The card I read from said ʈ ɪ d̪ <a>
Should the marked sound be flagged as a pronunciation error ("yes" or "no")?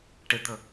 yes